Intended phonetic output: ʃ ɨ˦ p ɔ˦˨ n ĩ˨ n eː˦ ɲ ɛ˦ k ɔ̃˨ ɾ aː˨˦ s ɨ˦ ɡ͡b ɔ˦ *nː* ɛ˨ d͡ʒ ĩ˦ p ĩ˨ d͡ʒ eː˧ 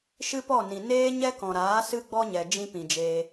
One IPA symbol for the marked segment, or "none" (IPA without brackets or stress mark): ɲ